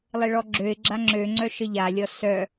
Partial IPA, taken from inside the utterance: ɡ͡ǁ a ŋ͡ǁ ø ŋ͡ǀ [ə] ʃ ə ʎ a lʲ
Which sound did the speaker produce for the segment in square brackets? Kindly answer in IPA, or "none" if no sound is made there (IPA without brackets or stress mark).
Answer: œ